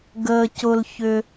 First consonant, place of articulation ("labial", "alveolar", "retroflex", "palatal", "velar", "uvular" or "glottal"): velar